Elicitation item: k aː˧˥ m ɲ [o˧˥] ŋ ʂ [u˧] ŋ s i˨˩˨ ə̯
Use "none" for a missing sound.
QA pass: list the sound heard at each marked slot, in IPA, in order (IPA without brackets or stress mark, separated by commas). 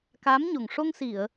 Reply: o˨˩, o˧